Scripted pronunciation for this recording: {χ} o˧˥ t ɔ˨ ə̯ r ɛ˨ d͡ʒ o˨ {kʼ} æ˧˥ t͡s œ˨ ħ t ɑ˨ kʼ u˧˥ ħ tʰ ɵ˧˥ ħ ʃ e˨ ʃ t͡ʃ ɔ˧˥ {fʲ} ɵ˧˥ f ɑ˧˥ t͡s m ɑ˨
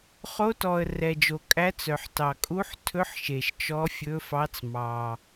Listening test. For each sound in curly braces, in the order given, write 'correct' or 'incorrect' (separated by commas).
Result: correct, correct, correct